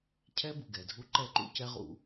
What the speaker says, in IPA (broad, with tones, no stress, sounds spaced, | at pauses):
cʰ ɛ˦ b u˨ ɡ ɛ˨ dʱ u˦ ǃ ɛ˦ ǃ ṵ˦ c ɛ˦ ʁ ṵ˨˦